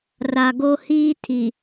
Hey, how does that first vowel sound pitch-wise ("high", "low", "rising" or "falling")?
low